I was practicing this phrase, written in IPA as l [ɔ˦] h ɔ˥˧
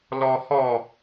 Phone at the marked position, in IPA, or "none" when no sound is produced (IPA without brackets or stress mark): ɔ˦